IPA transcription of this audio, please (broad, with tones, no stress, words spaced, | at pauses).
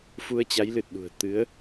fu˧ə̯t͡ɕa˨˦jlɨ˨˩t̚ɗṳ˨˩ə̯ t̪ɨ˨˦ə̯